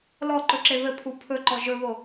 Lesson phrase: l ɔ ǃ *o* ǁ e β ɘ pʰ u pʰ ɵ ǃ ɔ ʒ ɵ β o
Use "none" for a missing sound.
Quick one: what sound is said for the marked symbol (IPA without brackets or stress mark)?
ɵ